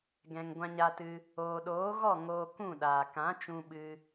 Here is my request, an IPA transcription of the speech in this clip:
ɡɛ̃˨ŋ ɡʷã˧ɲa˧tɨ˧ | oː˨ɗoː˨˦ɣɔ˦˨ ŋoː˧kũ˦˨ɗaː˨ kã˨˦t͡ʃũ˧ɓɨ˧

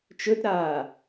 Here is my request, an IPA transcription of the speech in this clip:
t͡ʃɵtɾaː

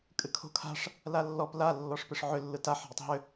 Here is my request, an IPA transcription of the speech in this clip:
kʼɨkʰo̤kʰa̤ʂ | lalːɔp la lːɔʂpɨʂʕʏ lːɯtaħ ɦɨtˤɦʏ

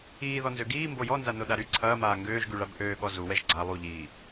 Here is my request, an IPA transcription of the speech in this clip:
iːðɔnzø ɡiːmbo jɔnzanoɗa ɾy ǀʰɐːmaː ŋɡøːʒɡyɭab ʔøːɠɔ zuwɛʒ ɡ͡ǀa lˠuʎiː

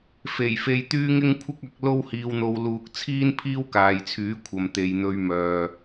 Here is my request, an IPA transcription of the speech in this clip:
fe˨˩jfe˧jt̪yː˥ ŋɪ˥ŋkʷʰɪ˥k̚ɐ˨˥k̚ lo˥whiː˧wn̪o˧w luː˧k̚ t͡sʰiː˥npʰiː˥wkaː˨jt͡sʰyː˨˥ kʷʰɐ˨mt̪e˨jn̪ɵ˧ɥ mœː˨

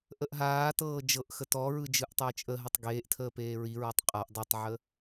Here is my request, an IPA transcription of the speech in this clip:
ʔəʔɦaːtɤː d͡ʒɤʔxə tɔɹɯ d͡ʒɯʔtˤəːt͡ʃʼəɦətˤ ɡeːʔtʰəː peːɹiɹɔtˤ qʼaʔ dˤetˤʕə

